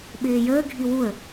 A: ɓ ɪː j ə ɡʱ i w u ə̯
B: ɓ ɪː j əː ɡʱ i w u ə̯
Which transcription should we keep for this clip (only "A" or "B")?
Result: B